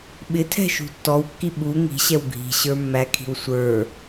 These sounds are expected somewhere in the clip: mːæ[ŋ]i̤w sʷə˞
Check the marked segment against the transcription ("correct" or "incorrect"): incorrect